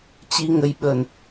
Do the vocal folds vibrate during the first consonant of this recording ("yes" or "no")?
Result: no